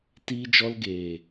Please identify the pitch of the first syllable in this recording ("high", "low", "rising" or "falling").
high